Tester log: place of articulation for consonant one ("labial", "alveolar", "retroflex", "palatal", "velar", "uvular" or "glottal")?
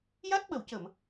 palatal